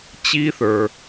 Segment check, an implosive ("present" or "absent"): absent